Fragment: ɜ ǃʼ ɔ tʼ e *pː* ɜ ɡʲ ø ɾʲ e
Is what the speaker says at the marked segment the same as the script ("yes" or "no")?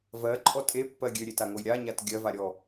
yes